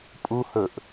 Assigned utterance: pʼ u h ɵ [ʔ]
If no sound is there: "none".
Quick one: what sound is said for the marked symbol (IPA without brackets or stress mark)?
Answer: ʔ